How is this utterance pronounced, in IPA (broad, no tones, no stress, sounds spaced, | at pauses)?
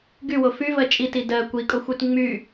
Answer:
ɡ y w o f y v ɜ t͡ʃʼ i t i d ɜ kʷ i kʼ o xʷ y t ŋ͡m y